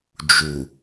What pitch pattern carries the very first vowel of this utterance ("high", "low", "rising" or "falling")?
low